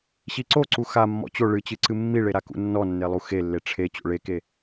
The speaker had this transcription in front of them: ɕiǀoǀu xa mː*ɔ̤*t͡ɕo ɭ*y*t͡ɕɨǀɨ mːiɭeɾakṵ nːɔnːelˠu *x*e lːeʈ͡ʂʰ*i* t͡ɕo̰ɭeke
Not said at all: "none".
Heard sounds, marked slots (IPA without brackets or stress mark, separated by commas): ɔ̰, ɨ, x, e